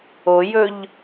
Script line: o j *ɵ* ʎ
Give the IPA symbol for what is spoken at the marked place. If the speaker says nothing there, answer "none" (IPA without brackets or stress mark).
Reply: ɵ